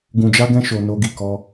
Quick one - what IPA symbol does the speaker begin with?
ɡ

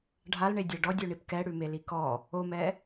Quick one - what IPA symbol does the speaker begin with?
ɖʱ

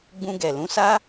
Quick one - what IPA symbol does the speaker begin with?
ɡ͡b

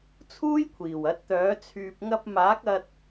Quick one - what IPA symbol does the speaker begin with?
t͡sʰ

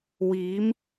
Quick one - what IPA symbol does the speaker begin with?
w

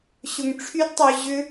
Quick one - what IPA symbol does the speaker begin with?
ɕ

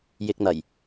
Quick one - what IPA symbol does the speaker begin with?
j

